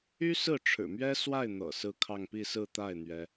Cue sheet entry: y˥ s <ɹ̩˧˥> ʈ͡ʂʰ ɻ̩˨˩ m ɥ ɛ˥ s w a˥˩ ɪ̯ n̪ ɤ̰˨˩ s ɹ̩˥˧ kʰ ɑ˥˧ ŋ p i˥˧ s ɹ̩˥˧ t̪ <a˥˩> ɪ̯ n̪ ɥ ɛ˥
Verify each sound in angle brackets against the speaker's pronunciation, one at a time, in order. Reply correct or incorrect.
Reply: incorrect: ɹ̩˥˩, correct

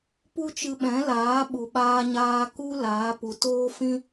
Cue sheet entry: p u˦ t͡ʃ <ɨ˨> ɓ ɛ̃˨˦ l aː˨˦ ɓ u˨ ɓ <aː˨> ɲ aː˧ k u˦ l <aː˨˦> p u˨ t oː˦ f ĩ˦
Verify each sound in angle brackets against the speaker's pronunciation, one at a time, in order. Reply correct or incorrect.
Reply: incorrect: ɨ˧, incorrect: aː˧, correct

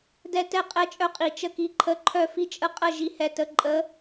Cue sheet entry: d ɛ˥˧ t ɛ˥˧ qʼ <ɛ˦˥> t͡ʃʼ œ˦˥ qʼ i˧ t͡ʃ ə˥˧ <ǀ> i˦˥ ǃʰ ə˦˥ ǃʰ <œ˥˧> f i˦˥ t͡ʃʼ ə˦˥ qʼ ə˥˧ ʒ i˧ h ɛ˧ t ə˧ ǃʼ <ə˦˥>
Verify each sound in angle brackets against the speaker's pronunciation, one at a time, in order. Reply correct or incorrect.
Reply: correct, incorrect: k, correct, correct

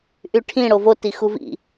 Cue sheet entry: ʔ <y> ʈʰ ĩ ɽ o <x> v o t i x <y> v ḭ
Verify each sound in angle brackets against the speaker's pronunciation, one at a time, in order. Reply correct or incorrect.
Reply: correct, incorrect: none, incorrect: u

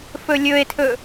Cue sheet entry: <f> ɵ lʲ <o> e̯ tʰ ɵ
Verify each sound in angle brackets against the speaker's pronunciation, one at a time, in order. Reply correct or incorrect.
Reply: correct, incorrect: ɵ

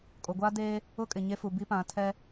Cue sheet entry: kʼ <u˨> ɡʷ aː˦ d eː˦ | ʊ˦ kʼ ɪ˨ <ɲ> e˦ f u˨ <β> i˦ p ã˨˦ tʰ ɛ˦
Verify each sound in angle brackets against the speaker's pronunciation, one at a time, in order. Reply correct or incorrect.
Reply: incorrect: o˨, correct, incorrect: b

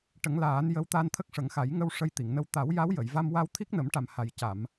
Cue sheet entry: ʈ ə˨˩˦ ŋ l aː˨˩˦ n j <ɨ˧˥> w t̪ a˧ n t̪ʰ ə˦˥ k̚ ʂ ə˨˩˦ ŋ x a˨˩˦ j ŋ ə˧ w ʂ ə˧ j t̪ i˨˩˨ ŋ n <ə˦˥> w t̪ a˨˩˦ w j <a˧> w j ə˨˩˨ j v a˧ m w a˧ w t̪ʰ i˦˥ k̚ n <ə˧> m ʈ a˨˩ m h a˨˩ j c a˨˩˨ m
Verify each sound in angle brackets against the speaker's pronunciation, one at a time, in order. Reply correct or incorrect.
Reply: incorrect: ə˧˥, incorrect: ə˧, incorrect: a˧˥, incorrect: ə˨˩˦

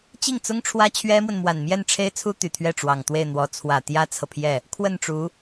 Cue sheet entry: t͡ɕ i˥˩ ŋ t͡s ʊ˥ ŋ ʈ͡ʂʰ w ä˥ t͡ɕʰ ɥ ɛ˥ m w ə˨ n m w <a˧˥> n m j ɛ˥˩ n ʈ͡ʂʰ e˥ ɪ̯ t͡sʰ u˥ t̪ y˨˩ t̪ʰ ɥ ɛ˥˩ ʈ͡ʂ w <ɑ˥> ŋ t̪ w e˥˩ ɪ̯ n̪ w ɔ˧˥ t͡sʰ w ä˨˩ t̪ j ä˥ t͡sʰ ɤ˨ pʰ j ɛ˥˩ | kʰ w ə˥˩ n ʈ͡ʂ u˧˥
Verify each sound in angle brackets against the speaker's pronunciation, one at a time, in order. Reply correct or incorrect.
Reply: incorrect: a˨˩, incorrect: ɑ˨˩

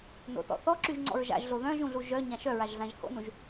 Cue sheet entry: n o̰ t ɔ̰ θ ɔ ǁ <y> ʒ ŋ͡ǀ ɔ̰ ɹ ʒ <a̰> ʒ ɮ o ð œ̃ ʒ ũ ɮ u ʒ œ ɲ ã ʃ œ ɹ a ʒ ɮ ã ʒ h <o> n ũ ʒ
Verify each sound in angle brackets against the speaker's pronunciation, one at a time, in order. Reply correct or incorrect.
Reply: correct, correct, incorrect: o̰

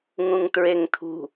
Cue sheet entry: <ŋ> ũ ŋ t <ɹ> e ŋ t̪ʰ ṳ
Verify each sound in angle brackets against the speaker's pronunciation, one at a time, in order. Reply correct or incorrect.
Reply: correct, correct

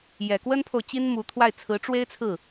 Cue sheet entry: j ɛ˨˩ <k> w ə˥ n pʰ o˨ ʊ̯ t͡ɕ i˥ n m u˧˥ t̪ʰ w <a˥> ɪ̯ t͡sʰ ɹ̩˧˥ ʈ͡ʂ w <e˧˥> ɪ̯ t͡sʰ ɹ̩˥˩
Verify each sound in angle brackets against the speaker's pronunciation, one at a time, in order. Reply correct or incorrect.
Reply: correct, incorrect: a˥˩, incorrect: e˥

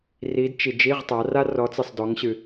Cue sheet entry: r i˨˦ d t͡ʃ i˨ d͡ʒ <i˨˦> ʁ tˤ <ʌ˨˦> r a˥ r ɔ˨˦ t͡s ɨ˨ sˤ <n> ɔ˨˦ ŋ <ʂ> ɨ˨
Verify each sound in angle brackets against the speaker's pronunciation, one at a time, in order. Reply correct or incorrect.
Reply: incorrect: i˧˥˧, incorrect: a˨˦, incorrect: d, incorrect: ɕ

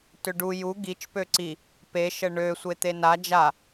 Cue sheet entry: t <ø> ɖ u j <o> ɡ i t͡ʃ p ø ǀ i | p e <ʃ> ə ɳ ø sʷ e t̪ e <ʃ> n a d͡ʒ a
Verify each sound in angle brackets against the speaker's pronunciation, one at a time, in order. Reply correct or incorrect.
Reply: correct, incorrect: u, correct, incorrect: none

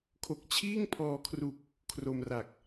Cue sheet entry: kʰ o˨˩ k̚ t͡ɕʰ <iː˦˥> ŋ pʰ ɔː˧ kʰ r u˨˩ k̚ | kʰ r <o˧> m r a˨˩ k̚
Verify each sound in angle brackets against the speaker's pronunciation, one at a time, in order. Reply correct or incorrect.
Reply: incorrect: iː˥˩, correct

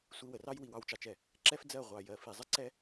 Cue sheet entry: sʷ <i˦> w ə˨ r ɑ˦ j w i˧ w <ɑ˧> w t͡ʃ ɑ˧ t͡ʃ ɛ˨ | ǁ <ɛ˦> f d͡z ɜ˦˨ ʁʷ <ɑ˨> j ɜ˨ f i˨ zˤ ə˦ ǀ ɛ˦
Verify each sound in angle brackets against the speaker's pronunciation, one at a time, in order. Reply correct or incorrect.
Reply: incorrect: i˧, correct, correct, correct

